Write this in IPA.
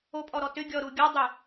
o pʼ ɔ ɾ ɔ t ʏ ɡʲ ɔ ɾ u ɡʲ ɔ dˤ ʏ

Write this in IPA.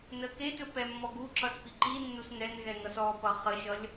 n ə k e t ɵ p ɛ mː ɔ ɡ u ǁ ʌ s p i ǃ i nː u s n ɛ n ɣ ɛ ŋ ʌ s ɔ p ʌ χ ə ʃ ʌ lʲ

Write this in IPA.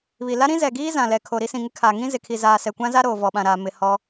β i˨ l a˦ ɾ ĩ˦ z ɛ˨ ɡ iː˦ z ã˨ l ɛ˨ kʰ o˨ ɾ i˦ s ĩ˨ ŋ ɪ˦ kʰ aː˨ ŋ ĩ˦ z ɪ˨ kʰ i˨ z aː˨ s ɛ˨ kʷ ã˦ z a˦ ɾ oː˨ v ɔ˨ ɓ ã˨ ɾ aː˨ m ɪ˨ h ɔ˦

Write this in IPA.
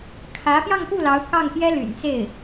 kʰ ä˧˥ p j ɑ˥˧ ŋ p u˥˩ l ɑ˧˥ ʊ̯ k ɑ˥˩ ŋ p j ɛ˥ l y̰˨˩ n t͡s e˥˩ ɪ̯

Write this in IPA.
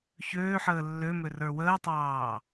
ç øː ħ əː lː ø m ø r ə˞ w əː tˤ ɑː

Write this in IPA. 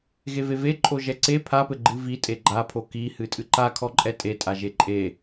ɣ e v e v e ǃʼ o ʒ ɛ ǀ e pʰ a p ɘ ɡ͡ǃ ɨ v i tʼ e ɡ͡ǃ a pʰ o k i h ɨ tʼ ɨ ǃ a kʰ ɔ ǃʼ ɛ tʼ e tʼ a ʒ e ǃʼ e

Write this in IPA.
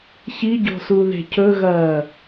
ç i ɟ o̤ s u ð e̤ cʰ ɵ ɣ ɐː

